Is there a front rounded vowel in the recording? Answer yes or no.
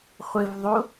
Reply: no